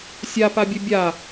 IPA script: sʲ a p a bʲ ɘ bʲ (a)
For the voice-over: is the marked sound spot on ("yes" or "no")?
yes